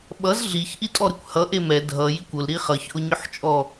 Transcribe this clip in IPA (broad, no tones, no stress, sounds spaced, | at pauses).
ɓ ʌ z ɮ i ç ʔ i tʼ ɔ ɾ ɨ kʷ h ʌ ʔ e m ɛ dʱ ʌ j i kʷ ʊ l ɾ i χ ʌ ç ʔ ʊ ɲ ʊ ħ t͡ʃʼ ɔ